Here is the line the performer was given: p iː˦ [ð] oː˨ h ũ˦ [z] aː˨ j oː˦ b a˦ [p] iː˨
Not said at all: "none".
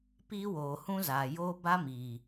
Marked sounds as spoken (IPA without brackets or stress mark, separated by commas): w, z, m